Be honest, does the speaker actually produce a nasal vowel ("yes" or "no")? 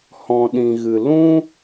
yes